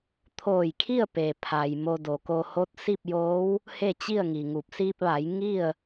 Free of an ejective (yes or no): yes